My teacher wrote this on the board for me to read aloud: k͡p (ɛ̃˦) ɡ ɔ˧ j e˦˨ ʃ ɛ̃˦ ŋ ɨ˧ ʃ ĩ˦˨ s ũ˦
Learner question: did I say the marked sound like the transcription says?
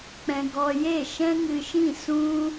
no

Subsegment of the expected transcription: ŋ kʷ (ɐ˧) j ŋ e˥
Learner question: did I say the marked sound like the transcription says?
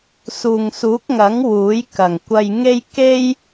yes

